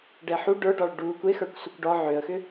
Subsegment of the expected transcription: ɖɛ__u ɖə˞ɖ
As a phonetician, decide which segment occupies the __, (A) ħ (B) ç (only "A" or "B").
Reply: A